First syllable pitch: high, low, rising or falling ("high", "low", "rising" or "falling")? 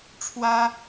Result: high